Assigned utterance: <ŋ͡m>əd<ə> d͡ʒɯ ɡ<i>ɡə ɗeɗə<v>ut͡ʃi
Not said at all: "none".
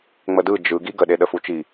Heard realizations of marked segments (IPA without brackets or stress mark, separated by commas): ŋ͡m, ɯ, i, f